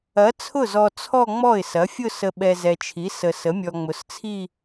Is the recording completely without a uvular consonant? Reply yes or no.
yes